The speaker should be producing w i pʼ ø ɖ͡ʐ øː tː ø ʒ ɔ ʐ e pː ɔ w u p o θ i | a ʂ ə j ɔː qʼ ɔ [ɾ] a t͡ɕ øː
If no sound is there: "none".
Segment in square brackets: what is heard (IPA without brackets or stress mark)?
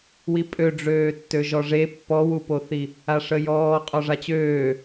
ʐ